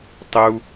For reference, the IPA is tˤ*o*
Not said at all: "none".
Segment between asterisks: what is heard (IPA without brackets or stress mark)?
u